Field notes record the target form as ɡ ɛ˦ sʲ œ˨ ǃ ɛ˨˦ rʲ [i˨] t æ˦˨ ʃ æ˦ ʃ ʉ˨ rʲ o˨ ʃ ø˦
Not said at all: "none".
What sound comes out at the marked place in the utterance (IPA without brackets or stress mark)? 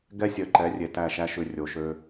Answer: e˨